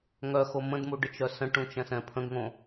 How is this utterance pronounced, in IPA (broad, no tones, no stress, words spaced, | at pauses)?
ŋœxo mə̃dmuɖət͡ʃœ sə̃ʈũt͡ʃɛ̃sɛ̃ pʰə̃ɡŋõ